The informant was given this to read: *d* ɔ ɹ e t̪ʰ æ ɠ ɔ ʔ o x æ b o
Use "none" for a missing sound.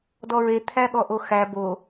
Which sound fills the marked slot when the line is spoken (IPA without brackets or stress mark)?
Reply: d